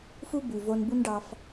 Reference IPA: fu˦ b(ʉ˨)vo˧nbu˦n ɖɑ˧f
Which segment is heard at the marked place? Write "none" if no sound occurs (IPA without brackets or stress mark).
ʉ˨